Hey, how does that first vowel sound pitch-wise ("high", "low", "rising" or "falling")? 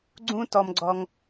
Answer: high